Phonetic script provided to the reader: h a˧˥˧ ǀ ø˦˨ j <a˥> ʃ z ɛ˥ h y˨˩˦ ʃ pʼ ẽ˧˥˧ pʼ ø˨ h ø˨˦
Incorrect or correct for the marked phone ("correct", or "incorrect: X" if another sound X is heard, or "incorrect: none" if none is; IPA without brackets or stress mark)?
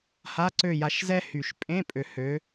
incorrect: a˨˦